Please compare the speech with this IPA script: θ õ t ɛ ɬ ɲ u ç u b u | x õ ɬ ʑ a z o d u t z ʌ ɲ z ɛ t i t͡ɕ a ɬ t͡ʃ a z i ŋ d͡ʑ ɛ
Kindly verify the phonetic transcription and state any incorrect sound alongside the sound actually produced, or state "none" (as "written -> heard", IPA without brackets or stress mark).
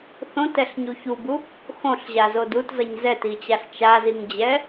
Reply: none